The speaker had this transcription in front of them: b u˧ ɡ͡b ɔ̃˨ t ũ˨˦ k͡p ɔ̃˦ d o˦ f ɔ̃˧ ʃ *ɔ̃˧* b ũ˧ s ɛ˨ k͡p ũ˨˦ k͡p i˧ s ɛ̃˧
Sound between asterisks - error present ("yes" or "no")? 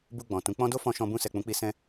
no